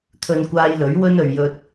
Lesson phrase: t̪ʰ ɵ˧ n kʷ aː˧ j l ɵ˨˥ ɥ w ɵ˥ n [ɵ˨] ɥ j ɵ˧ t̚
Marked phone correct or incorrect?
correct